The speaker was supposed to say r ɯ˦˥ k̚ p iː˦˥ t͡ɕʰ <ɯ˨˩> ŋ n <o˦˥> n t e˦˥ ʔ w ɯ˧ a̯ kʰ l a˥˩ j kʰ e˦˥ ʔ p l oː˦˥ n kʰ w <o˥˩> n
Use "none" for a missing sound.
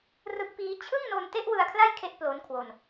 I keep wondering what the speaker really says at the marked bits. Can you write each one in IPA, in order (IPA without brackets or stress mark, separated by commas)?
ɯ˥˩, o˧, o˧